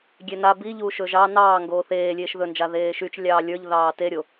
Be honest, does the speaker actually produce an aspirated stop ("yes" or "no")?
no